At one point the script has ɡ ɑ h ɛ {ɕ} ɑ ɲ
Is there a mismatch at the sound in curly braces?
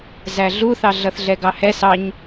yes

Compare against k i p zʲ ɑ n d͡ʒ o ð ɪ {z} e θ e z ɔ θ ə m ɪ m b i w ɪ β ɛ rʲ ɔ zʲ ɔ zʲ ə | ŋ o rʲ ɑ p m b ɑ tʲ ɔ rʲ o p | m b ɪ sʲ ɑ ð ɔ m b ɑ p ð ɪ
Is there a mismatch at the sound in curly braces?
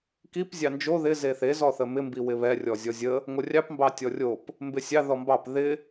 no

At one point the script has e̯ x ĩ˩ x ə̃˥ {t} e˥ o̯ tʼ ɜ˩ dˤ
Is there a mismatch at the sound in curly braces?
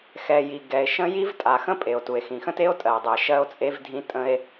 no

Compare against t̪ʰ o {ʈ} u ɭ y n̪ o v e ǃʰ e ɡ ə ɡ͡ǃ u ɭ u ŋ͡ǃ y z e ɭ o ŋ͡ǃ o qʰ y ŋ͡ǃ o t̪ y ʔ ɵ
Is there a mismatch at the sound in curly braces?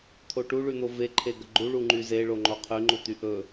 no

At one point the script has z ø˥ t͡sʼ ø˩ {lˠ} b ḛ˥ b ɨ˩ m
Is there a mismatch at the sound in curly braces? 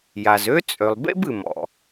no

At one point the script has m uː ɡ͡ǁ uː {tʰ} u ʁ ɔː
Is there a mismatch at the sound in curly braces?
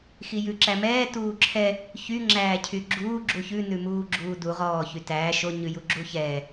yes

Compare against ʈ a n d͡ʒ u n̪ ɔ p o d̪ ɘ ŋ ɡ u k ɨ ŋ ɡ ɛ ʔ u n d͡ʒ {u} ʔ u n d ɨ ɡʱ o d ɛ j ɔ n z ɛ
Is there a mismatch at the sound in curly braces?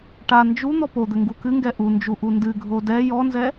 no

